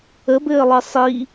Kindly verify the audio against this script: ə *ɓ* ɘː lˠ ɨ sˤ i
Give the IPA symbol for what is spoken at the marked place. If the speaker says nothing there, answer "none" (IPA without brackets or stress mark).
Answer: b